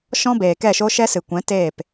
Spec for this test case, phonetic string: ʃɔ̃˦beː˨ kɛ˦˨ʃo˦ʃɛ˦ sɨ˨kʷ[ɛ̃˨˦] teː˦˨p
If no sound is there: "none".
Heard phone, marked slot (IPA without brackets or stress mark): ɛ̃˨˦